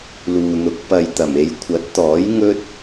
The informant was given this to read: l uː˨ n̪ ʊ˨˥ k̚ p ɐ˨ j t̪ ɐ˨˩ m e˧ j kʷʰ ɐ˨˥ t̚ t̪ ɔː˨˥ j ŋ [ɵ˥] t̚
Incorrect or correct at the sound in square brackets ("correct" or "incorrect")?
correct